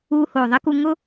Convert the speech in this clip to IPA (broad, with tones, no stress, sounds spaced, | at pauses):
uː˧ h oː˨ ðˤ e˦ k u˧ ŋ ʊ˦